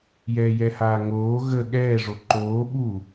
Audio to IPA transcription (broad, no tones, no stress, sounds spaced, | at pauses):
j ɛː j ɛ h aː ŋ oː ɣ ə ɠ ɛː ʐ o ǃ oː ɓ u